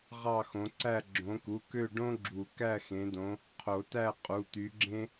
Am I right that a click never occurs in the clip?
no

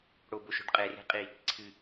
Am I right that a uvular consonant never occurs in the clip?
no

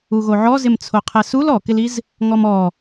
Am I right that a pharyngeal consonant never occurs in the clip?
no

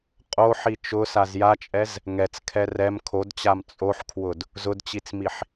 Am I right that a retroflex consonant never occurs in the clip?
yes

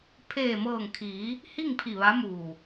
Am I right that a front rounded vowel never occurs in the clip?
yes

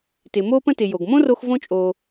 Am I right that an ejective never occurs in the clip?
no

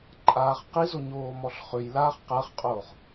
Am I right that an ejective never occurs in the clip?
no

